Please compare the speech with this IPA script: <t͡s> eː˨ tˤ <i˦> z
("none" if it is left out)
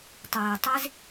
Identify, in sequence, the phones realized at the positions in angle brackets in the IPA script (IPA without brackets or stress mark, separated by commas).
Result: tˤ, i˦